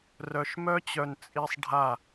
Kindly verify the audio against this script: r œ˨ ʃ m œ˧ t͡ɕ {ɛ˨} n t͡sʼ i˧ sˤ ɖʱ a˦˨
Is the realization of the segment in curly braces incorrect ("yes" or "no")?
yes